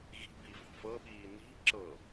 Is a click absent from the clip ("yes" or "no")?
no